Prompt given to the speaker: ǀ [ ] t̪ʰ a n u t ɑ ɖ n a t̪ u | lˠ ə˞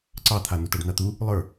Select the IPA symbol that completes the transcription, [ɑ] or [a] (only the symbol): ɑ